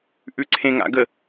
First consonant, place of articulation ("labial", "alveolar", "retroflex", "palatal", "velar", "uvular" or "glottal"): glottal